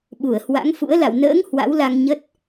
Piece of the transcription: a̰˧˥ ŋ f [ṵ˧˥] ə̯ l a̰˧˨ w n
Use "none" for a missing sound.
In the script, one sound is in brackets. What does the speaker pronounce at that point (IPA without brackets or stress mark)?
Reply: ṵ˧˥